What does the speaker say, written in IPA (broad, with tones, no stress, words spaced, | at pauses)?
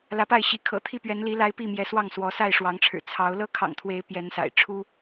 lä˨˦pa˥˨ɪ̯ɕi˨˦ kʰɤ̰˨˩t̪ʰi˥˨pɥɛ˨˦n li˨˦la˨˦ɪ̯ pi˥˨mjɛ˨˦swɑ˥˨ŋ swɔ˨˦sa˥˨ɪ̯ʂwɑ˨˦ŋʈ͡ʂʰɻ̩˨˩ t͡sʰɑ˨˦ʊ̯ lɤ˦kʰɑ̰˨˩ŋt̪ʰwe˨˦ɪ̯ pjɛ˨˦nsa̰˨˩ɪ̯ ʈ͡ʂʰu˦